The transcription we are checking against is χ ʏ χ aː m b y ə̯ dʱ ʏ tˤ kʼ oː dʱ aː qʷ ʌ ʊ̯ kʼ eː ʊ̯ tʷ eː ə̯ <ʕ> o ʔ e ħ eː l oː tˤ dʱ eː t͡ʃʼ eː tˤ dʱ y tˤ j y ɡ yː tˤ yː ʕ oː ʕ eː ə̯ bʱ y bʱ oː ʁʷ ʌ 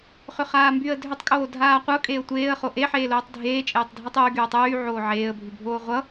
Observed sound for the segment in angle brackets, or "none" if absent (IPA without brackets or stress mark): χ